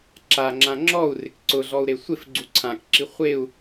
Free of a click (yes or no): no